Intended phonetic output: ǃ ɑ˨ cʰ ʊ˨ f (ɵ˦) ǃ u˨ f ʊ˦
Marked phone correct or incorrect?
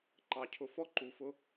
incorrect